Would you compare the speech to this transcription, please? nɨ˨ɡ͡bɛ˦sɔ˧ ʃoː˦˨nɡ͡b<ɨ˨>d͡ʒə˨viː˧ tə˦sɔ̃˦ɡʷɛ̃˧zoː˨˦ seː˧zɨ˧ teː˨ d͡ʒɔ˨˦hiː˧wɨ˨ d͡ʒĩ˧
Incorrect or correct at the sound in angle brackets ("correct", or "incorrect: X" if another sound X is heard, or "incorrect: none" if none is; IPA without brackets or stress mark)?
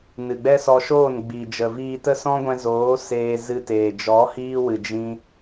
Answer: incorrect: i˨